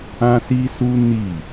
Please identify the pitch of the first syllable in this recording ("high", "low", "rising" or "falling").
high